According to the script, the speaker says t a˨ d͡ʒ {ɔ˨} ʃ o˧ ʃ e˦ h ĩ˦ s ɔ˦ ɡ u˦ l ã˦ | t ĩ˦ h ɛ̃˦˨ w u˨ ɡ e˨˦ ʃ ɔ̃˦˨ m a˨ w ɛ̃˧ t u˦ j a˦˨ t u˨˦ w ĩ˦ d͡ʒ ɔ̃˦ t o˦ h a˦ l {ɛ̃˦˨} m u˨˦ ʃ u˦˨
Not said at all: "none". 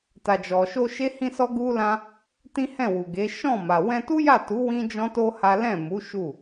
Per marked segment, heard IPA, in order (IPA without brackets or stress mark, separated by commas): ɔ˨, ɛ̃˦˨